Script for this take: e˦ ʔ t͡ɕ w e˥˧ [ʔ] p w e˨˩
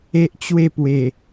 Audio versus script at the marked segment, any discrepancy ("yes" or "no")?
yes